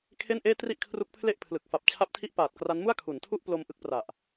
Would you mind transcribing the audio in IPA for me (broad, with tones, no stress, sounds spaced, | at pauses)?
kʰ e˥˩ n ʔ eː˥˩ t r i˥˩ ʔ kʰ r u˦˥ k̚ pʰ l e˥˩ ʔ pʰ l ɯ˨˩ k̚ f a˨˩ p̚ t͡ɕʰ a˦˥ p̚ tʰ i˦˥ ʔ p aː˨˩ t̚ k r a˦˥ n m u˥˩ a̯ kʰ u˩˦ n tʰ u˥˩ ʔ p l o˧ m ʔ ɯ˥˩ k̚ p r a˨˩ ʔ